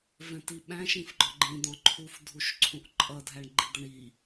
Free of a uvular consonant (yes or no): yes